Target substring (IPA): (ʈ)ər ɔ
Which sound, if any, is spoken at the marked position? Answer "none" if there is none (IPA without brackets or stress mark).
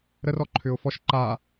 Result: ɾ